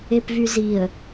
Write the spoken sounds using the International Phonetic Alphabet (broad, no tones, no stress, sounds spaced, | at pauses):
e p v y z i ə̯